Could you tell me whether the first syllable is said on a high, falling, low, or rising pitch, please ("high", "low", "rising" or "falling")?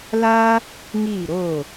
high